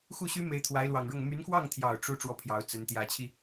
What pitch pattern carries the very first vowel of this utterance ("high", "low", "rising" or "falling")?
falling